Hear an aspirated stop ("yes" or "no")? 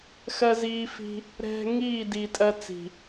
no